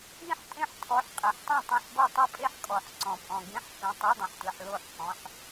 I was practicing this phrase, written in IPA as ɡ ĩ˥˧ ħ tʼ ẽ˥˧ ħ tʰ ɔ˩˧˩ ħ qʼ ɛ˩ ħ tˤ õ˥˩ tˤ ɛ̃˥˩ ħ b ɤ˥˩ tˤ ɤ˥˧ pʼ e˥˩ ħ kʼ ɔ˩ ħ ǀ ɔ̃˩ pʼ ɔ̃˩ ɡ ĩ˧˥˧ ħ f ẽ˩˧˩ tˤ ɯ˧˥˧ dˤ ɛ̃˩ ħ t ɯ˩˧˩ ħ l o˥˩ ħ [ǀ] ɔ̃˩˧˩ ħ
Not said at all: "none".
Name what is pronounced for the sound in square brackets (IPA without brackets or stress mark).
k